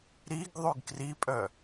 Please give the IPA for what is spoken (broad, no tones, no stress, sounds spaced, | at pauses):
ɾ i ɡ ðˤ y ɡ k r i pʼ œ